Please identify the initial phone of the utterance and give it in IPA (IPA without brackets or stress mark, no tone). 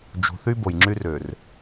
d͡ʒ